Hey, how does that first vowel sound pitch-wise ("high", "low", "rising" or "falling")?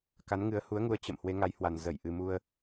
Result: rising